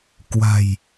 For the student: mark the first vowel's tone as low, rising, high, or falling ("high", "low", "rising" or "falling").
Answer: low